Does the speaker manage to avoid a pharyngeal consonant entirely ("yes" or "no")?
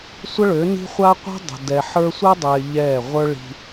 no